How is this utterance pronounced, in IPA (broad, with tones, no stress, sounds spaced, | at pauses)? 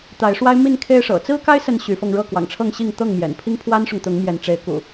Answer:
t̪ a˨˦ ɪ̯ ʂ w a˦ ɪ̯ m i˥˨ n kʰ e˦ ɪ̯ ʂ ɤ̰˨˩ t͡s ɹ̩˦ k a˦ ɪ̯ s ə˨˦ n ɕ y˨˦ f ɤ˧ ŋ ɻ ɤ˥˨ k w ɑ̰˨˩ ŋ ʈ͡ʂʰ ɤ˥˨ ŋ ɕ i˥˨ ŋ t̪ ɤ˥˨ ŋ m j ɛ̰˨˩ n pʰ i˦ ŋ pʰ w a˦ n ʂ ʊ˨ ŋ t̪ ʊ˨˦ ŋ m j ɛ˨˦ n ʈ͡ʂ e˨˦ ɪ̯ k ṵ˨˩